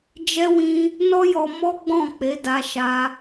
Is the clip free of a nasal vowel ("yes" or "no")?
no